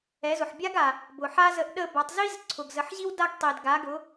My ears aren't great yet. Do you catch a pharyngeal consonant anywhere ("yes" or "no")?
yes